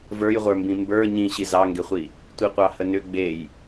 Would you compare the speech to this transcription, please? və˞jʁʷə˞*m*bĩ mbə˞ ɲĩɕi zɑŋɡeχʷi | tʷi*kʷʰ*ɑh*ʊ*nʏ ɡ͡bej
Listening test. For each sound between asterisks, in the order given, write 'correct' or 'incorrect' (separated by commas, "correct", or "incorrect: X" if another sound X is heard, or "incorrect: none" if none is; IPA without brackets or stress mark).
correct, incorrect: qʷ, incorrect: ə